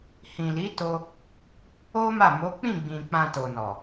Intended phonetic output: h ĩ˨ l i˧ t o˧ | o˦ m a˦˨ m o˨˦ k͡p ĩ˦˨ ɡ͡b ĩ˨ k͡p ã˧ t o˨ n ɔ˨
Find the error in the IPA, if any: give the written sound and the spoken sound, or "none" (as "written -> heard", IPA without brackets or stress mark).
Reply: i˧ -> i˨˦